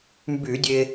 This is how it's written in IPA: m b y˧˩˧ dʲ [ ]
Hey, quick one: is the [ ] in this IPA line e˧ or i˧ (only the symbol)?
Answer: e˧